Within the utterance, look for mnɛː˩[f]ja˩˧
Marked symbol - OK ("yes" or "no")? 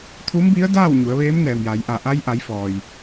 no